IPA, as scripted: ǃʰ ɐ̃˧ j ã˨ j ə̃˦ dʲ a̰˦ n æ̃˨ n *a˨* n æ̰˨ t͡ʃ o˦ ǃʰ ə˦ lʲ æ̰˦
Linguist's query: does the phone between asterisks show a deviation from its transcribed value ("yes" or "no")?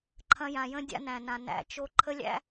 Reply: yes